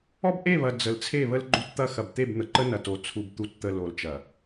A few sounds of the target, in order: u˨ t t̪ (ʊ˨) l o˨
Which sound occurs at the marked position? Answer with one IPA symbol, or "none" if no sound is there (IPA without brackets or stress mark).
ə˨